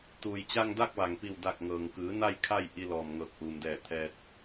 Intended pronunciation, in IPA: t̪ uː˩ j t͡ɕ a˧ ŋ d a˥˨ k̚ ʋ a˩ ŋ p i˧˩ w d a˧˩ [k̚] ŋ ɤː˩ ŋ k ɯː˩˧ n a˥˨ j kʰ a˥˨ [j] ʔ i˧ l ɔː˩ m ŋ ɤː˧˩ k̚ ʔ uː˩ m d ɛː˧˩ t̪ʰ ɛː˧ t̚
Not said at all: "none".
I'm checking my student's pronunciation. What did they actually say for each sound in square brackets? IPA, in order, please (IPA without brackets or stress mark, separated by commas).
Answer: k̚, j